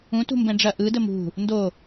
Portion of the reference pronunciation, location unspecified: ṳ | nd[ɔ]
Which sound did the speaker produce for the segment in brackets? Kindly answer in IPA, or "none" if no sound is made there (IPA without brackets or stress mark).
o